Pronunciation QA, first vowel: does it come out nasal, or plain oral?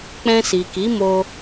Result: nasal